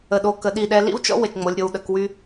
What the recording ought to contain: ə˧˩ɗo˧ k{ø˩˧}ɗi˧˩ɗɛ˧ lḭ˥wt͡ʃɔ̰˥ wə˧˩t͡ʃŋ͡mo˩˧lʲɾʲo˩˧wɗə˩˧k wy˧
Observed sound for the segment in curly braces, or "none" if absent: ə˩˧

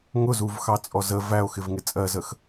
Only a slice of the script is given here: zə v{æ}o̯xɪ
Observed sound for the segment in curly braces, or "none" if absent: æ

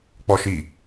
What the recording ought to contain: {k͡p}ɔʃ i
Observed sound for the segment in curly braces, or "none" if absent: k͡p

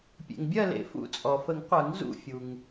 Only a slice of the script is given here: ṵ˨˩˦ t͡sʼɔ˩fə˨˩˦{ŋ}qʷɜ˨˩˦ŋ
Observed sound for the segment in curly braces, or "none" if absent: ŋ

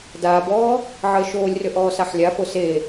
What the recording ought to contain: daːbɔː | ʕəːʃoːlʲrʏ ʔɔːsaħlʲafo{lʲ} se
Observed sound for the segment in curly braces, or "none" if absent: none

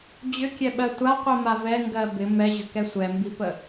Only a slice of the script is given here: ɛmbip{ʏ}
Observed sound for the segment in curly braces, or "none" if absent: ə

